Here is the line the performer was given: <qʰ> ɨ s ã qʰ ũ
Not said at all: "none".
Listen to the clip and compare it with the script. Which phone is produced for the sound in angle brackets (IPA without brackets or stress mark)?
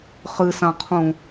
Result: χ